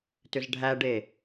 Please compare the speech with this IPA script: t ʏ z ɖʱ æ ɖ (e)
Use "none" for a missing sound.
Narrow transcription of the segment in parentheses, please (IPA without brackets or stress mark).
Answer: e